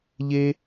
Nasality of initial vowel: oral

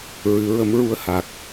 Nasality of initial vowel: oral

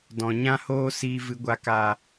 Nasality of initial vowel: nasal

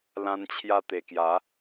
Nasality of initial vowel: nasal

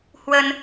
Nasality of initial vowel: oral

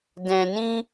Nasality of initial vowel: nasal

